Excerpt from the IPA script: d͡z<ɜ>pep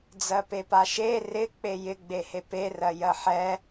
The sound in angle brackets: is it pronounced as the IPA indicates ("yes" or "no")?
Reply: yes